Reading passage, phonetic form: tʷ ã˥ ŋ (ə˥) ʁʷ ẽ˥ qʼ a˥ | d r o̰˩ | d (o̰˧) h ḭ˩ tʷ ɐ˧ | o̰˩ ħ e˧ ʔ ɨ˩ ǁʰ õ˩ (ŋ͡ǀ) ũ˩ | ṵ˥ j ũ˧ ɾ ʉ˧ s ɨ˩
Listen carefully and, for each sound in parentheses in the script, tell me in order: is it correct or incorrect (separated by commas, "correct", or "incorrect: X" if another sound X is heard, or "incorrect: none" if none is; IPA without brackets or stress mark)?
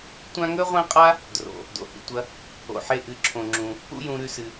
incorrect: ɵ˥, incorrect: o̰˩, incorrect: ŋ͡ǁ